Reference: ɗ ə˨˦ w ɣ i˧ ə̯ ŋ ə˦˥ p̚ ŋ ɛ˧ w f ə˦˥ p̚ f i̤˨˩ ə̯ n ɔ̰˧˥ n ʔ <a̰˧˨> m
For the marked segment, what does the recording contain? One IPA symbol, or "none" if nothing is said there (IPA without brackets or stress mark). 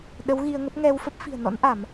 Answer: a˧˩˨